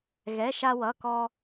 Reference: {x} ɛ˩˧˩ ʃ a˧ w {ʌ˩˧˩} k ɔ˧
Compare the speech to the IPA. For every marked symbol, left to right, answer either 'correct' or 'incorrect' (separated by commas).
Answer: incorrect, correct